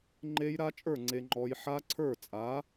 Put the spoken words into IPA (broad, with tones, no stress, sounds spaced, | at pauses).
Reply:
ŋ͡ǃ e˦˥ j ɾ a˦˥ t͡ʃʼ ə˞˥˩ ŋ͡ǀ e˨ ŋ͡ǃ ɔ˨ j ħ a˦˥ ǀʰ ə˞˥˩ t͡sʼ a˩˥